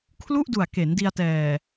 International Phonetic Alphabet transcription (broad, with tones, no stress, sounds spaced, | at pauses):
kʰ l u˥˩ ʔ d u˨˩ a̯ k e˩˦ n d i˧ a̯ t ɛː˨˩